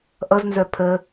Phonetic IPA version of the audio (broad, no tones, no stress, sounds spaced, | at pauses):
ʔ ʌ z n z œ pʰ ə